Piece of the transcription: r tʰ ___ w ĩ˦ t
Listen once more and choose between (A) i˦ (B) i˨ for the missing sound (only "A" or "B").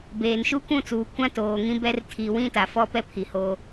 B